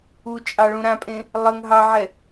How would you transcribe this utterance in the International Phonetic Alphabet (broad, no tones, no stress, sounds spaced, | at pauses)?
u t͡ʃʼ ɑ ɭ ũ ɾ ã pʼ ẽ | lˠ ə ŋ ɦ ɑ ʕ ɛ